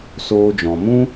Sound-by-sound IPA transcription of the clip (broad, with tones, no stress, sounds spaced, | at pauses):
s oː˧ d͡ʒ ɔ̃˨ m ũ˦